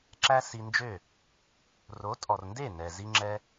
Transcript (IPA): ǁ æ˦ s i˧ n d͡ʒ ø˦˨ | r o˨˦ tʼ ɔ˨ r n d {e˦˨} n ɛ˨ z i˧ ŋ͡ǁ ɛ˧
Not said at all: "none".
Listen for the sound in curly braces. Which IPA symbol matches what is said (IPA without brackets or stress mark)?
e˦˨